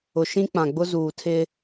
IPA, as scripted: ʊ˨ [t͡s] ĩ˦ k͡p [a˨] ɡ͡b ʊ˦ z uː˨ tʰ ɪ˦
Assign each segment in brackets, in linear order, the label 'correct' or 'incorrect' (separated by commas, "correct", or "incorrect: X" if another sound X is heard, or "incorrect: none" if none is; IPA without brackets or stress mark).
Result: incorrect: ʃ, incorrect: ã˨